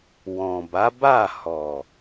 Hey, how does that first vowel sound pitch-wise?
low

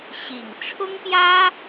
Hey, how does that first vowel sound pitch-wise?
low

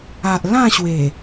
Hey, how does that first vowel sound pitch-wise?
low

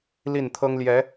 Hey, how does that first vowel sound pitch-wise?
falling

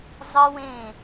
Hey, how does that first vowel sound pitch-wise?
high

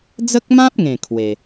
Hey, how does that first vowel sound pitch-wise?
high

